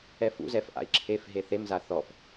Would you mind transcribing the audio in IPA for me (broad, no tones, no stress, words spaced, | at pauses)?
ɛfṵ zɛfʔa̰i̯ǁʰef ɦeθemza θɔf